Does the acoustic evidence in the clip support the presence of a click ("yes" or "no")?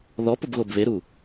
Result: no